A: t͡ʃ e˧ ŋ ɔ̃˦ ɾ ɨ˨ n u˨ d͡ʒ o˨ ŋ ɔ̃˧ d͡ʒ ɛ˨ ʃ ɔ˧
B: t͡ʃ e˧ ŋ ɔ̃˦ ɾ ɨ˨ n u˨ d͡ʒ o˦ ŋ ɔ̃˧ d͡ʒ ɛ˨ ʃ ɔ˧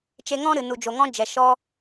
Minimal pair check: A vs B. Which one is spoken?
A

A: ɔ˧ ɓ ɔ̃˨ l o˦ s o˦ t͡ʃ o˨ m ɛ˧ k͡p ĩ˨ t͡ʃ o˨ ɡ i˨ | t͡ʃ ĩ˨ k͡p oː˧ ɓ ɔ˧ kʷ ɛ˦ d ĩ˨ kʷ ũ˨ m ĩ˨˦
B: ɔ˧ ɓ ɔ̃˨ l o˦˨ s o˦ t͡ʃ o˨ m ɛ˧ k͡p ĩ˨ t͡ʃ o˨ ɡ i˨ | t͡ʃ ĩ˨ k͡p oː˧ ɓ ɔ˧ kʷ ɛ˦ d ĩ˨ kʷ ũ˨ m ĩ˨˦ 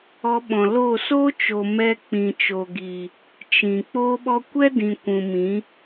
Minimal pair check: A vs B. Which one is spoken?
B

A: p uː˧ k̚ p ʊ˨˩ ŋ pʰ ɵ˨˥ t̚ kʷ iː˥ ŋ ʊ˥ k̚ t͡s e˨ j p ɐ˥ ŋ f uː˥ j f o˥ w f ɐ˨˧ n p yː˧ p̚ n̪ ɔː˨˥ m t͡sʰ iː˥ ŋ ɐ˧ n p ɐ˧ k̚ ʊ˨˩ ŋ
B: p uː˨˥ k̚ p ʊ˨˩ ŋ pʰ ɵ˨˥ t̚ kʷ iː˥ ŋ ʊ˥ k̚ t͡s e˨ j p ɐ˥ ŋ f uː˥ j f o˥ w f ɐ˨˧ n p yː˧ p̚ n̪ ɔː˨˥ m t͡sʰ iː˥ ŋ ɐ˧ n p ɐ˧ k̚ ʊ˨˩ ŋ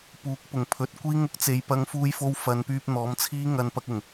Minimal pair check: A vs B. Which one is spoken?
B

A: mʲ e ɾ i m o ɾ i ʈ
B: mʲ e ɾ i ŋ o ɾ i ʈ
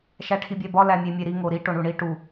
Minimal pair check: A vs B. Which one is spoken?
B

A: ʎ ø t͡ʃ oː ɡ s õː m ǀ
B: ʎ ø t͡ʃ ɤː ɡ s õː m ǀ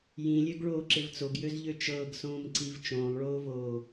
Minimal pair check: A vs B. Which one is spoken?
B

